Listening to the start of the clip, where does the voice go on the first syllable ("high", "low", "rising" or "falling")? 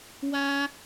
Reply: high